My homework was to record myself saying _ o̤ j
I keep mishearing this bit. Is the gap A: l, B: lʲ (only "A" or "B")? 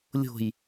B